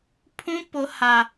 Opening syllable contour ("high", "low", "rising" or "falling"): high